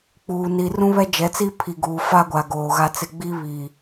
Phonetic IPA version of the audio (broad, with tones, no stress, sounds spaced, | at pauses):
k͡p uː˨ n i˨ r ũ˦ β ɛ˦ d͡ʒ ɛ˨˦ t͡s i˦ pʰ i˨ ɡ uː˨ f a˦ ɡʷ a˨ ɡ oː˨ ɣ a˦ t͡s ɪ˦ ɡ͡b i˦ β i˨